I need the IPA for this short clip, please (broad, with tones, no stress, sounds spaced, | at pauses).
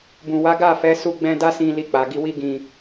b ũ˨ w a˨˦ ɡ a˦˨ f ɛ˨˦ s u˧ ɡ͡b ɛ̃˧ d a˦ s ĩ˧ l i˧ k͡p a˨ ɡ i˧ w i˦ ɡ ĩ˧